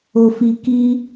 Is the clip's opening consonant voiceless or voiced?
voiceless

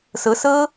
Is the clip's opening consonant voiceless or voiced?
voiceless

